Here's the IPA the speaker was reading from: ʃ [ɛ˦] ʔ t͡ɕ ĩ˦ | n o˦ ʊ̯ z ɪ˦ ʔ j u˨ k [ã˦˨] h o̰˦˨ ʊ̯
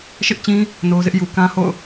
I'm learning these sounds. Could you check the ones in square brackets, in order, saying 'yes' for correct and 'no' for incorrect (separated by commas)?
no, no